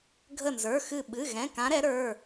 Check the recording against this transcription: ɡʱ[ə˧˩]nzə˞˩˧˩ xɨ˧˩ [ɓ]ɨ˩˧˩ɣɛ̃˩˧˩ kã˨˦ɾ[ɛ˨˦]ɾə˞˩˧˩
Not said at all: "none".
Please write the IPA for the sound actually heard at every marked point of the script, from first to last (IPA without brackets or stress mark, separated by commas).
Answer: ə˧˩, ɓ, ɛ˨˦